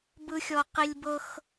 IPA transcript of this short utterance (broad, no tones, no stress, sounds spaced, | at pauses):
b ɯ xʲ ɔ q i lʲ b ɤ x